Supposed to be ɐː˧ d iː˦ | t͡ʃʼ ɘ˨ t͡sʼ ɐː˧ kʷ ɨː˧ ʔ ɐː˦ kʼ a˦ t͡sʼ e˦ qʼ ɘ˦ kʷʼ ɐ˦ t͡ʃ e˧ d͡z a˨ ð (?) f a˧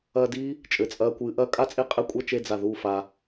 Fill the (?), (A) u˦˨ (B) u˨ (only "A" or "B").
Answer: A